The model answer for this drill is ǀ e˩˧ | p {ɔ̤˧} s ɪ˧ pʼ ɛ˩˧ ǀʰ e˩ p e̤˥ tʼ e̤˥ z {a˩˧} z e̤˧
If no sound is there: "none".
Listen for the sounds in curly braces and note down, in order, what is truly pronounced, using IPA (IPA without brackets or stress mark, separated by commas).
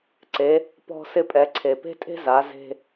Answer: ɔ̤˧, a˩˧